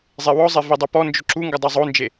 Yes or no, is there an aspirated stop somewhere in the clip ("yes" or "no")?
no